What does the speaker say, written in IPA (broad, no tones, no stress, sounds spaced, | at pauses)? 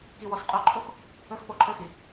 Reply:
k i w ɔ s qʼ o ǃʰ o x | ɵ x p o ǃʰ ɵ x i